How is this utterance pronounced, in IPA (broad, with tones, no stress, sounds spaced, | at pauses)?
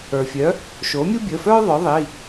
ə˞˩ fʲ œ˩˥ | ʃ o˩˥ mʲ u˥ bʲ əː˩˧˩ f œː˥ ðˤ œ˩˥ ðˤ i˩˧˩